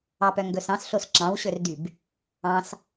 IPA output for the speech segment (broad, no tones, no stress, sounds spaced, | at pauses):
ɑ p œ ŋ ɡ ɵ s ɑ̃ s ɬ o s ǁ ɑ̃ w ɕ ɵ r d y b | ɑ̃ s